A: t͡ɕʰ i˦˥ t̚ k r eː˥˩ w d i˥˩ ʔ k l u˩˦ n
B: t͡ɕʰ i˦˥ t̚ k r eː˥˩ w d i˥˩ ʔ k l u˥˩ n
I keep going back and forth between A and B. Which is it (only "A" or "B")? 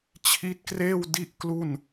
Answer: B